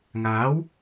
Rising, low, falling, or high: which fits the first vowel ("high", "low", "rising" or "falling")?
rising